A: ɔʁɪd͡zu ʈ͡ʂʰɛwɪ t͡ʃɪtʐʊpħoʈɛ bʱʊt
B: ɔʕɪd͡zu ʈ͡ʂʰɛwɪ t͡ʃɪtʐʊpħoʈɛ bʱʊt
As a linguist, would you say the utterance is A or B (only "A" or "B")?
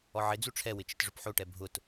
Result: B